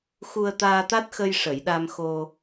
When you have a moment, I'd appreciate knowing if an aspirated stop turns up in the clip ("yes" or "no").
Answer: no